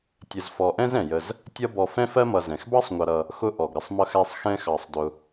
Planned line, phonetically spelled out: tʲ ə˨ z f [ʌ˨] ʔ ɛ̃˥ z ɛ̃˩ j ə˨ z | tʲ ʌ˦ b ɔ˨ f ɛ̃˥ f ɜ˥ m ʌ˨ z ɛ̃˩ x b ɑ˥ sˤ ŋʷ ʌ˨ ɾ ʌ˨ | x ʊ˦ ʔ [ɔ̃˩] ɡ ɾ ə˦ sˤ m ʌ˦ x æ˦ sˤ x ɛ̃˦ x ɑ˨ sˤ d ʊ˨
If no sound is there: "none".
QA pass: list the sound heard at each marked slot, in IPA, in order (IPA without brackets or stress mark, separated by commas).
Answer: ɔ˨, ɔ˩